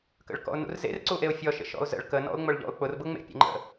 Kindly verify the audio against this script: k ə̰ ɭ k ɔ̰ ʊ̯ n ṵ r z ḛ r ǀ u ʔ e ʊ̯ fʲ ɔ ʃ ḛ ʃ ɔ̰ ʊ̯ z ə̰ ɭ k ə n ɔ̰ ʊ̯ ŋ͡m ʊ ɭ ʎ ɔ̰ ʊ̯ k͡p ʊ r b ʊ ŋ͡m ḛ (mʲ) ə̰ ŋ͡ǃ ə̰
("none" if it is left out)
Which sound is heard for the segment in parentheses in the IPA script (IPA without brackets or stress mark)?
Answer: pʲ